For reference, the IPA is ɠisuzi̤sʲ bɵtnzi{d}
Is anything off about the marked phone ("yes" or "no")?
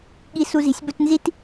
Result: yes